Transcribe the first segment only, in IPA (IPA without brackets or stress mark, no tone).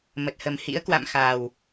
m